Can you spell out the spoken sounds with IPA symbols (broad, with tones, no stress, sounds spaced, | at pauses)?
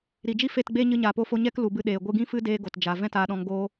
ɾ i˨ d͡ʒ i˦ f e˦˨ t ɡ͡b e˦ ɲ ɨ˧ ɲ aː˨ p o˧ f o˧ ɲ ɛ˦ k l u˨ b ɨ˧ ɗ eː˧ ɡʷ ɨ˧ ɡ ĩ˦ f ɨ˦ d eː˦ ɡ o˨ t d͡ʒ a˨ v ɛ̃˦ t aː˧ ɗ ɔ̃˧ ŋ ɡ oː˦